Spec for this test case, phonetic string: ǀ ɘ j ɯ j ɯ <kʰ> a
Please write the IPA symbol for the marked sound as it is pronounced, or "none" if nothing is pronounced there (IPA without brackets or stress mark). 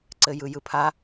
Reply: pʰ